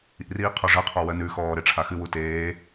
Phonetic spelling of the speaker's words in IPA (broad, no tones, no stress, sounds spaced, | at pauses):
ḭ r iː qʰ ɔ ʐ ɜ qʰ ɔ w ɜ n ʉ x ɔː ɾ e ʈ͡ʂʰ a x ɨ w u t eː